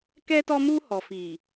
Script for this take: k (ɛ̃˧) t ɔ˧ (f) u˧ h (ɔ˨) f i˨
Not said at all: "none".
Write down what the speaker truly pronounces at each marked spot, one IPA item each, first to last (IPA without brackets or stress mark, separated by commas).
ɛ˧, m, ɔ˨